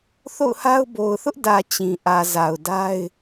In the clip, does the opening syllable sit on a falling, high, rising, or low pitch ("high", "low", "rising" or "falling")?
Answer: falling